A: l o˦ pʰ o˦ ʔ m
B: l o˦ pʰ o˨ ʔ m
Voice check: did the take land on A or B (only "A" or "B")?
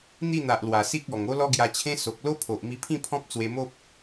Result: B